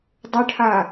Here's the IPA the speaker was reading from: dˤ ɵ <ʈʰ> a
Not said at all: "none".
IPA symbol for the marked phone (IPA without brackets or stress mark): ʈʰ